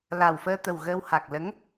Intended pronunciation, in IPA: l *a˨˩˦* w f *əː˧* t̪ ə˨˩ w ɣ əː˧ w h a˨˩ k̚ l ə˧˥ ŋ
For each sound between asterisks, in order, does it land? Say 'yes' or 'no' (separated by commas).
no, yes